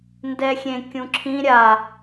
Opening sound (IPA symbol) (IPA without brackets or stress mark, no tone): n